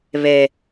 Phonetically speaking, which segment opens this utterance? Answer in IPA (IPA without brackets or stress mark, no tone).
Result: β